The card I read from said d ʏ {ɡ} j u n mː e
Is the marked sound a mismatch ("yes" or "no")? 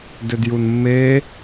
yes